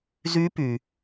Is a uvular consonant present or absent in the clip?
absent